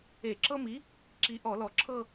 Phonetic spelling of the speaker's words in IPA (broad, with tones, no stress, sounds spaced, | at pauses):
e˧˩˧ ǁ ɤ˦ m i˨˥ | ǁ i˩˧ ʔ ɔ˧˩˧ l ɔ˨˩ ǁʰ ɤ˦˨